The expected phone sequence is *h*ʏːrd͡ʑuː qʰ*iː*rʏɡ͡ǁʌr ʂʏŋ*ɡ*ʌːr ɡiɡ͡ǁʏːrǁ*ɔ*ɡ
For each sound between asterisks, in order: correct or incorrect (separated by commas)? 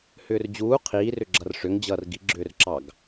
correct, correct, incorrect, incorrect